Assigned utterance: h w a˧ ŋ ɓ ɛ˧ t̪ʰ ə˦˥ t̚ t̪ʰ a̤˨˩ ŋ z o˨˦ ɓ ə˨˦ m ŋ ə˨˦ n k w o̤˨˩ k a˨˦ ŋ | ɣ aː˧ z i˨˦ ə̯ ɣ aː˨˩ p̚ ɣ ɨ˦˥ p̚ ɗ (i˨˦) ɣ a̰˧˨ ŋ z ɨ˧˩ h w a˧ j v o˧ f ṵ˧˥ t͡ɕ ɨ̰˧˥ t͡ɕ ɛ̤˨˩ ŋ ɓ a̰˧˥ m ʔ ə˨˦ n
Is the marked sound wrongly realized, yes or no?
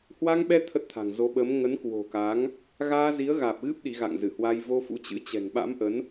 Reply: no